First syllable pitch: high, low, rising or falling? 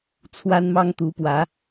high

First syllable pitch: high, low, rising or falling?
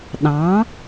rising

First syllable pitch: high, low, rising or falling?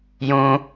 high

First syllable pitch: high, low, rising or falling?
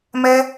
high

